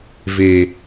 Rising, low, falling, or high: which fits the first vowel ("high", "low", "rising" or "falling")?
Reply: low